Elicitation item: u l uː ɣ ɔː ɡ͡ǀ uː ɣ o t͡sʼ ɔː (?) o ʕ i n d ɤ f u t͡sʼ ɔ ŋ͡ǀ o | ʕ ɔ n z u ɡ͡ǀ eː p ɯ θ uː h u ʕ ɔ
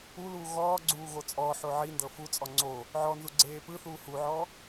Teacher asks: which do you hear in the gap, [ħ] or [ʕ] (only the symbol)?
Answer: ħ